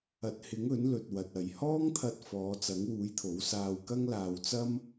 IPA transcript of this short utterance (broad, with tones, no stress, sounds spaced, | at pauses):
ɐ˨˥ t̚ h ɪ˨˥ ŋ ɵ˨˥ n l ɵ˨ t̚ w ɐ˨ t̚ ɐ˨ j h ɔː˥ ŋ t̪ʰ ɐ˧ t̚ f ɔː˨˧ t͡s ɐ˨˥ ŋ w uː˨˥ j t̪ʰ o˨˥ w s aː˧ w k ɐ˥ ŋ l aː˧ w t͡s ɐ˥ m